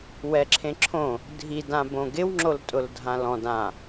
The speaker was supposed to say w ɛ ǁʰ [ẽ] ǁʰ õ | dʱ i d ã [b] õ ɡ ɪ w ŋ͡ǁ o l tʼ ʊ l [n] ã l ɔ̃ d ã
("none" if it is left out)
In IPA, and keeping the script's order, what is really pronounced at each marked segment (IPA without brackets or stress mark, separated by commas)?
ẽ, b, dʱ